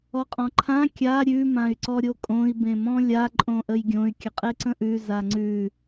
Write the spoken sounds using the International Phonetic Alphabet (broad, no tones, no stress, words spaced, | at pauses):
ɔqʼɔ̃ǃʰã kʲa ɾʲʉ mãy̯ǀɔɾʲokʼõi̯ bẽmɔ̃lʲa ǃʼõʔəjɡʲõy̯ kʲəqʼeǀə̃ʔʉ zaŋ͡ǀʉ